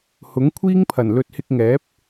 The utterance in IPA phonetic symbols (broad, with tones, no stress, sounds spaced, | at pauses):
h ʊ˨˥ ŋ kʷʰ iː˥ ŋ pʰ ɐ˨˩ n l ɵ˨˥ t̚ h ɪ˧ k̚ ŋ ɛː˨˥ p̚